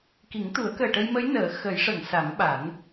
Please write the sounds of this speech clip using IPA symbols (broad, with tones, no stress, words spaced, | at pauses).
ki˨˩˦ŋt̪u˨˩˦ə̯kəː˨˩ʈə˧j mə˧˥jnəː˨˩˦ xə˨˩˦jʂə˨˩˨ŋ sa˨˩˦mɓa˨˩˦n